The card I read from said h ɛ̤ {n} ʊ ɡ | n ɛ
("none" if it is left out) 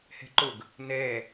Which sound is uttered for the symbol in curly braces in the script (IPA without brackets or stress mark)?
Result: ǃ